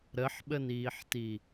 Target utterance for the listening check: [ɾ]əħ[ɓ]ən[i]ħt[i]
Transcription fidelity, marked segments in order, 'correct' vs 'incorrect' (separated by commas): correct, correct, incorrect, correct